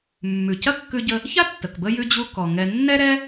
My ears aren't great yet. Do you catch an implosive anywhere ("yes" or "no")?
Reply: no